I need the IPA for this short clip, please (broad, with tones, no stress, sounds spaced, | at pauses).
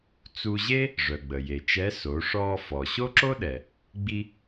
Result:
t͡s u˧ ʑ e˥ | ʐ œ˩ ɡ͡b ə˩ j e˩ t͡ʃ ɛ˧˥ s o˩˧ ʂ ɔː˧ f ɔ˩ ɕ o˥ ǁ o˥ ɗ ɛ˩ | ɡ͡b i˧